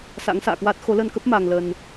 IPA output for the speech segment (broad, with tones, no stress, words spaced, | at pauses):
sa̰˧˥ŋsa̰ː˧˨kwa˦˥t̚ xo˨˦lə˧nkə˦˥p̚ ma˧ŋlə˧n